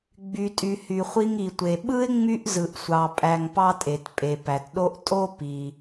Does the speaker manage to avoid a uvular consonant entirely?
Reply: no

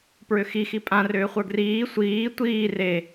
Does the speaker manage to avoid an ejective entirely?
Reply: no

